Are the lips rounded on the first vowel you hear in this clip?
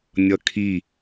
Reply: no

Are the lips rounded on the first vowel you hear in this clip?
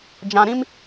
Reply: no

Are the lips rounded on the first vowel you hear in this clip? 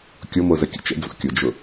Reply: yes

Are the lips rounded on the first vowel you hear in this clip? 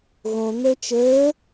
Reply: yes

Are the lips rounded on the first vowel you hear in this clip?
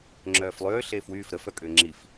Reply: yes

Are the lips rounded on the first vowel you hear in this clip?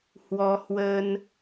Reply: yes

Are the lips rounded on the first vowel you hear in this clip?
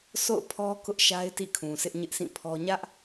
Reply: yes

